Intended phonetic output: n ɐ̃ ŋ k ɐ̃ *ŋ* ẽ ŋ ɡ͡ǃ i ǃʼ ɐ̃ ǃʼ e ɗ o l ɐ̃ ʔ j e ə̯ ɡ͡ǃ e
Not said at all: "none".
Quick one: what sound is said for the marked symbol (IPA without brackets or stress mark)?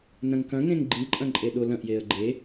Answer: ŋ